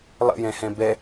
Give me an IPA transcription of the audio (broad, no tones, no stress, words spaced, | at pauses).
lˠə̰jɛ̃hɛ̃ bɛ